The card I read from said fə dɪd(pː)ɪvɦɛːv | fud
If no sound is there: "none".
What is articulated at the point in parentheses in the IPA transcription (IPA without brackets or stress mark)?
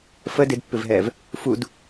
pː